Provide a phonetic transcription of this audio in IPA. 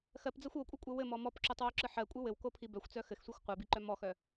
xɜpd͡zɜxʷ okʷʼɯkʷʼɜ wɘmɔ mɔpǁotˤwoǁɯ ħɜkʷʼɯ wɘwkopʰi bœxʷt͡sœ xɘxsʷixʷ qʷɜbiǃœ mɔxœ

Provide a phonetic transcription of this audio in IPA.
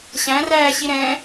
ɕæ̃ræːɕi ɾɛ̃

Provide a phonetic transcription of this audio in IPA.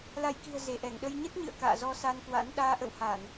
la˧˩jki̤˨˩ə̯ ze˧˩ʔɛ˧˩ŋɗə˧j ɲə˦˥t̚ɲɨ̰˧˨ə̯ ka̰ː˧˨zɔ˧sa˧nkwa̰˧˥n ɗaː˧ʔə̰˧˨whaː˧˩˨n

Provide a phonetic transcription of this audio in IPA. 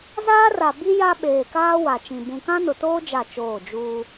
zaː˦ra˨bi˦ ja˦ɓeː˨kaː˦ wa˨t͡ʃĩ˨ bũ˨kã˦nʊ˨toː˦ d͡ʒa˦˨t͡ʃoː˦˨ d͡ʒuː˦

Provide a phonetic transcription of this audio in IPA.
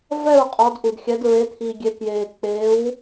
vɛ˥˩ɹqʼɔ˩˧d ʔu˩dxʲɛ˩˧dɹe˩˧ t̪ʰi˩ɡʲe˩˧ kjeː˩k͡pe˩˧w

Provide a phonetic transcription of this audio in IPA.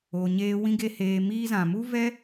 o˧ɲeː˦ wĩ˦ɡe˦heː˧ miː˧zã˨mu˦vɛ˦

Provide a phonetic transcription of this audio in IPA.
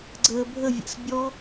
ɡ͡ǀəːbʱəvʲɛ̰s bʲɔ

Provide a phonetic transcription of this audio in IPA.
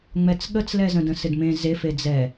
ŋ͡mɛt͡sɠət͡slɛzə̃ də̃sɪdmẽ zef ed͡zɛ

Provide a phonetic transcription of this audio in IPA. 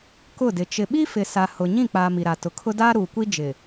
kʊ˦˨dɪ˨ t͡ʃɪ˨ɓi˦fɪ˨sa˨ hʊ˨ ɲĩ˦˨k͡paː˨ mi˨ɾa˨ tʊ˨kʰʊ˦ daː˦ɾuː˨kʷi˦ d͡ʒɪ˨

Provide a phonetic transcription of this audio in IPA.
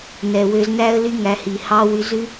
nɛ˨wø˧znæ˦ə̯ ly˦ŋæ˧hi˨ hɑ˧ wy˧zʉ˦

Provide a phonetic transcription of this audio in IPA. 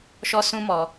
ʃɔ˦sũ˦mɔ˧

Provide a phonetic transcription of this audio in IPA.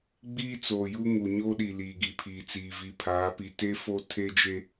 ɡ͡biː˦t͡soː˨ju˦ ŋu˨ ɲo˦ɗi˨ liː˨ɡi˨pʰiː˨t͡siː˨ vi˨pʰaː˨˦pi˨ te˦ fo˦ tʰe˦d͡ʒe˦

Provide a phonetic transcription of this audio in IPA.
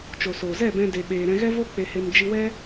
t͡ʃo˨so˨zɛ˦˨ bɛ̃˦de˧ɓeː˧ ɾɛ̃˧ɣɛ˦vo˦ k͡pe˧he˧m d͡ʒi˧wɛ˦

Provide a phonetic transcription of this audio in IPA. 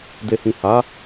de˨hĩ˨ha˨˦

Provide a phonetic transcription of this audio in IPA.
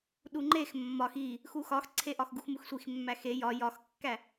ɗuŋ͡ǃex mːɒx i | xuxɒxǀʰe ʔɒxɡuxmuxsʷix mːæxe jɒ jɒxkːæ

